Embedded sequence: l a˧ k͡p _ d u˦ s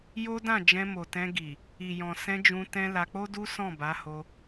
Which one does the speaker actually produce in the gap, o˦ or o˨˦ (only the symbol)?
o˦